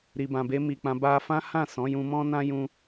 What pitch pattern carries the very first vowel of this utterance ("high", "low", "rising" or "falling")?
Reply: low